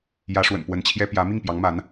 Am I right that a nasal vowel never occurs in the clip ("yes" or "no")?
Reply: yes